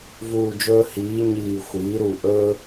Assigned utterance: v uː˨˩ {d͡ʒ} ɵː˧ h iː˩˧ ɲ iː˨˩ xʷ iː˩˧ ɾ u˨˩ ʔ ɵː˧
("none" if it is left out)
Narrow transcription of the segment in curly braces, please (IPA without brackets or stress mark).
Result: d͡ʒ